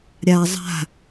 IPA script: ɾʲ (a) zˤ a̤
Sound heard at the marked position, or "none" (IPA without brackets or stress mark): a